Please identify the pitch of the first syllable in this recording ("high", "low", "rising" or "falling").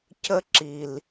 high